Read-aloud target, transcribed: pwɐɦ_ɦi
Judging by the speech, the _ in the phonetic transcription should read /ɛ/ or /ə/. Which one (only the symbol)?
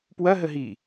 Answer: ə